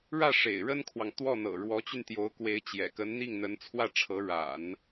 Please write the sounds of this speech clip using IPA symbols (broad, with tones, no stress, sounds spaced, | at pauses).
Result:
ɻ ä˥˩ ʂ ḛ˨˩ ɪ̯ ɻ ə˥ n kʰ w ɑ˨ ŋ t̪ w ɔ˥˩ n̪ ɤ̰˨˩ ɻ w ɔ˧˥ t͡ɕ y˧ n t̪ j o˧˥ ʊ̯ k w e˧˥ ɪ̯ t͡ɕ j ɛ̰˨˩ k ə˧˥ n n̪ i˥˩ ŋ n̪ ə˧˥ n t͡sʰ w ä˥˩ ʈ͡ʂʰ ɤ˧˥ ɻ a̰˨˩˦ n